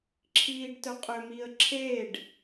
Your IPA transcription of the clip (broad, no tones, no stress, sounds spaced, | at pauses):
ǁʰ iː ɖ t œ qʼ ø m i ə̯ ǁʰ eː ɖ